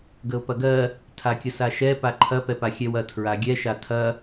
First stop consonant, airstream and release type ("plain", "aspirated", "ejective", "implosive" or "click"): plain